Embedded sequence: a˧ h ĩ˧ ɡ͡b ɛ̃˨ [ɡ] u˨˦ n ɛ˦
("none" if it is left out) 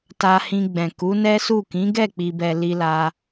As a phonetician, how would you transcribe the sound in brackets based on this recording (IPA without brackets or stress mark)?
k